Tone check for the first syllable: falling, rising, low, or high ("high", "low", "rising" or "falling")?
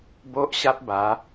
high